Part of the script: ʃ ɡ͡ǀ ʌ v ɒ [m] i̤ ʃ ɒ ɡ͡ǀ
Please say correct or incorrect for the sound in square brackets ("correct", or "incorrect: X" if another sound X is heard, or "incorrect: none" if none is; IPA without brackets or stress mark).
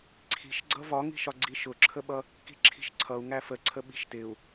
incorrect: ŋ